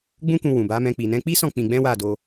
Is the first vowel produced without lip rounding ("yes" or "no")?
no